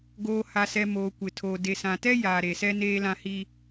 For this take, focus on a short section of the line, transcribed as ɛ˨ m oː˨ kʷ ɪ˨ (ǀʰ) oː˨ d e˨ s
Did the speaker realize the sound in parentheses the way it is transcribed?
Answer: no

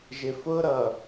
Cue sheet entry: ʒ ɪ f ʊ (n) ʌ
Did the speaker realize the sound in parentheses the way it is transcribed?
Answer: no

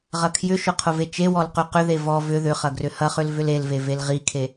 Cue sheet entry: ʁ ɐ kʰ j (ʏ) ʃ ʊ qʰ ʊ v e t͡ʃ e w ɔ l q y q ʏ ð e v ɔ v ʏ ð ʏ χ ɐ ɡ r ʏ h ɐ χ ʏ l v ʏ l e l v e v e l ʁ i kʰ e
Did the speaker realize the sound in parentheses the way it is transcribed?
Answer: yes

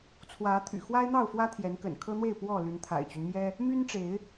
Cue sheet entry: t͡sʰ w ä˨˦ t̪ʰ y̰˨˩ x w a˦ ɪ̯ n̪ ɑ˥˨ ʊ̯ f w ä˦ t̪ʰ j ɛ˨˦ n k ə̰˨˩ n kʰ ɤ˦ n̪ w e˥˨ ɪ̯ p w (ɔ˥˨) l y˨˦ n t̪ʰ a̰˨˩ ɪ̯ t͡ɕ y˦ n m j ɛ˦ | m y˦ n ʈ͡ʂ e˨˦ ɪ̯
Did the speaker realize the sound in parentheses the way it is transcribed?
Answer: yes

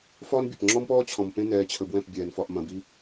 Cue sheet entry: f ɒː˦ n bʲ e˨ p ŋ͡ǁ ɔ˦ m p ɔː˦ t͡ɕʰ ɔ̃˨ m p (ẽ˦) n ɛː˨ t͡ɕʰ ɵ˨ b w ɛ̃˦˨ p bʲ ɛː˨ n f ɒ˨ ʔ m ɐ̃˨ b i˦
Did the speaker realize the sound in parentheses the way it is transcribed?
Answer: yes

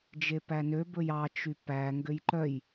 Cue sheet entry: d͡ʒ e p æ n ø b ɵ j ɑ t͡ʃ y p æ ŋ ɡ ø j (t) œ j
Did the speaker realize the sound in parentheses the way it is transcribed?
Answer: no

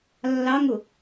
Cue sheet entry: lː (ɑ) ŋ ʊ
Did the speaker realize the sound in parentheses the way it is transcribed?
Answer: yes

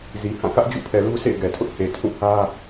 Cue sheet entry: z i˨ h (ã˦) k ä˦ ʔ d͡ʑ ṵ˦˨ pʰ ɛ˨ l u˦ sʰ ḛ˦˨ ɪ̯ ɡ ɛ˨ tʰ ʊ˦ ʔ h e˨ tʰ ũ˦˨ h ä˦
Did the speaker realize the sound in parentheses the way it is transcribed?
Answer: no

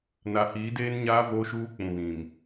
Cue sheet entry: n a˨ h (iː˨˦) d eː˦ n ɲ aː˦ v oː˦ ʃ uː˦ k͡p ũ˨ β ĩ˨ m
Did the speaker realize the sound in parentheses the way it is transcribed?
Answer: yes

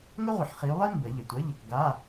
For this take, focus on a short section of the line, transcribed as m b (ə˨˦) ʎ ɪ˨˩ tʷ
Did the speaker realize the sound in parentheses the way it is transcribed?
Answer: no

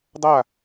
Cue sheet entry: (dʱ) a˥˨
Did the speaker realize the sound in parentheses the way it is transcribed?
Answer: no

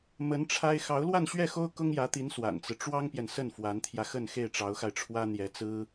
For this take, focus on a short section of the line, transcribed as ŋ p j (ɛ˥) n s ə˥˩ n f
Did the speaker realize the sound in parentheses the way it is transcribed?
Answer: no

